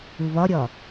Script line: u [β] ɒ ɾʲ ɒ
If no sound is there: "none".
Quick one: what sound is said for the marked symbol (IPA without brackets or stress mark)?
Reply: β